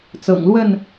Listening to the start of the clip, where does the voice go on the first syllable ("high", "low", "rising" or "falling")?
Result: low